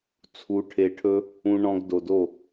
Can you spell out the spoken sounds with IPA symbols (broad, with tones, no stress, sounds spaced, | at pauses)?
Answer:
t͡sʰ u˧ ʈʰ e˧ ʈʰ ɵ˦ | ũ˧ ɳ ɔ̃˧ ɡ d o˨ d o˦˨